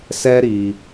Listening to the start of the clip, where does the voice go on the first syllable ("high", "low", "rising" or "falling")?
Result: high